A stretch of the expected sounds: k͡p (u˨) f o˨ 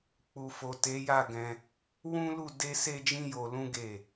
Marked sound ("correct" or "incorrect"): correct